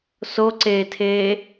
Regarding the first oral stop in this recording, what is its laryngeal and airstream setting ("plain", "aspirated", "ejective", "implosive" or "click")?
click